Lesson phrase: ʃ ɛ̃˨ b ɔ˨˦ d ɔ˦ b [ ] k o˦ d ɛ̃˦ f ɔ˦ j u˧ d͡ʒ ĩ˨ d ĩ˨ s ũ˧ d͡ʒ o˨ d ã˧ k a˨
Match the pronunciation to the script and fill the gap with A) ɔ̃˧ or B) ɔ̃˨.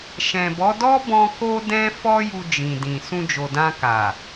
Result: A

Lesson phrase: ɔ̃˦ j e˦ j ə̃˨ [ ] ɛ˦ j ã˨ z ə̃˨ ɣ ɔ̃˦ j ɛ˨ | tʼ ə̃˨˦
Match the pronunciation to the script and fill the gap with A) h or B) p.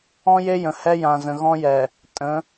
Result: A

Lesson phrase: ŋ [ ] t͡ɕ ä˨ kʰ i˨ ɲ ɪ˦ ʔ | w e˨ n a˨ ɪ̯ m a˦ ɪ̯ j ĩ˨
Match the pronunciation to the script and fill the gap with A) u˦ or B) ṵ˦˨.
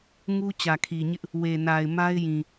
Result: A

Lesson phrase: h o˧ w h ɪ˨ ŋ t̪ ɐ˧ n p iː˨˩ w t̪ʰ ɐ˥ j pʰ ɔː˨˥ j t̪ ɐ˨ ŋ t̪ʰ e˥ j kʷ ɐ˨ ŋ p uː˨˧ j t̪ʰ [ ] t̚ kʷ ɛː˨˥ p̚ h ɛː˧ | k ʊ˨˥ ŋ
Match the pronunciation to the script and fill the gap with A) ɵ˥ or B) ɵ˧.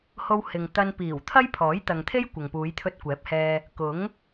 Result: B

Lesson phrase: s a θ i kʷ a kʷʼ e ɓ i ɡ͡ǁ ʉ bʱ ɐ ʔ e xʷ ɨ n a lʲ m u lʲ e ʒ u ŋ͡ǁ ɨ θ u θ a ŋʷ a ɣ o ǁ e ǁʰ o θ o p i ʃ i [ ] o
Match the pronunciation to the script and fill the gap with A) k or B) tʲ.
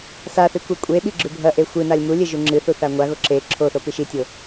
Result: B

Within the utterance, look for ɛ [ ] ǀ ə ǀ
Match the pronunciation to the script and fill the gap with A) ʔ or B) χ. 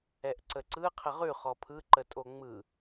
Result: A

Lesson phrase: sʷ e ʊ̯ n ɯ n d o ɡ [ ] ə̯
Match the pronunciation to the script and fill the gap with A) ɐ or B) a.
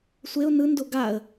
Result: B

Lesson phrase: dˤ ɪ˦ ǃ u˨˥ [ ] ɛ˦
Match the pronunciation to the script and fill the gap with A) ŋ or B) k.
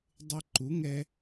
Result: A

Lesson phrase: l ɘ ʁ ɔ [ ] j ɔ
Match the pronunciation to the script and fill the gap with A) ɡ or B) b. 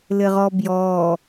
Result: B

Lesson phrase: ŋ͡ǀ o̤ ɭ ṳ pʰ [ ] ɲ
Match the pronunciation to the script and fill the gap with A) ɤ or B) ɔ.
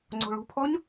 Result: B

